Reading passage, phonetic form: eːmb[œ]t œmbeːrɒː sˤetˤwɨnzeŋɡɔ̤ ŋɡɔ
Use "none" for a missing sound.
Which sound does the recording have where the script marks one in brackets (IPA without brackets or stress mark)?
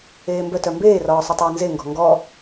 œ